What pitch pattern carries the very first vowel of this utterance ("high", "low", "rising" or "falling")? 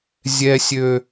high